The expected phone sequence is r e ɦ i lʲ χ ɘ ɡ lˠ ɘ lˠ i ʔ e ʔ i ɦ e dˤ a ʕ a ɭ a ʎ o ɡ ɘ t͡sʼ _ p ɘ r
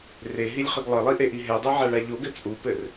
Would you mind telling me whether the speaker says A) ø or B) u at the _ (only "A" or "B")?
B